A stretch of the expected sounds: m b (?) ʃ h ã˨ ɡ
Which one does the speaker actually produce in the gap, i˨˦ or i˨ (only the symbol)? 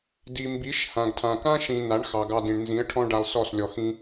i˨˦